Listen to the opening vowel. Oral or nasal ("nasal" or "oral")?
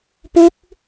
oral